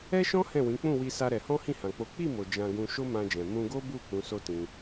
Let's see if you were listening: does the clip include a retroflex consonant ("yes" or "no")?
no